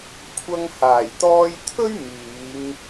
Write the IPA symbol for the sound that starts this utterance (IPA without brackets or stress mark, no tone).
kʷʰ